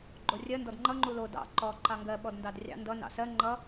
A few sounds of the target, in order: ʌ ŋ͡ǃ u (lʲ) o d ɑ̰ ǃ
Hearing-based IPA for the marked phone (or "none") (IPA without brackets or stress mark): l